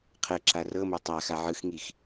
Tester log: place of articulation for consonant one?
uvular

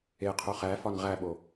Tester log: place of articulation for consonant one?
uvular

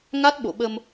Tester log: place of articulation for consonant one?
velar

